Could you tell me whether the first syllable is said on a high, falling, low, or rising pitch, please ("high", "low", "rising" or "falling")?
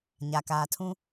low